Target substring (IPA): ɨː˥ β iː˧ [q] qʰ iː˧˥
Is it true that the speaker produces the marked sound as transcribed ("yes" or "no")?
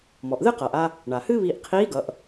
no